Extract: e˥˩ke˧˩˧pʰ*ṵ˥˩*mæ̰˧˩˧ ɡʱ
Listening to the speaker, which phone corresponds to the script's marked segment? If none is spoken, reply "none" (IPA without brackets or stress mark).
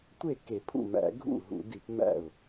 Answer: ṵ˥˩